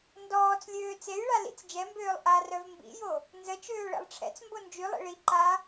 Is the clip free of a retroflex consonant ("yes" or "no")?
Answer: no